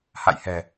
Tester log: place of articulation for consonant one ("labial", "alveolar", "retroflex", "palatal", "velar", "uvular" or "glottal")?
glottal